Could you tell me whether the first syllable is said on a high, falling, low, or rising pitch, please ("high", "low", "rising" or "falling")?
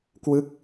falling